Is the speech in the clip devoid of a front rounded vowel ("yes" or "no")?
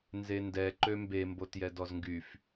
no